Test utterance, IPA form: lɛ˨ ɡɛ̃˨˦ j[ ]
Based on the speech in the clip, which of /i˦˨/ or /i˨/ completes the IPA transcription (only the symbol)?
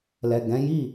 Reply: i˦˨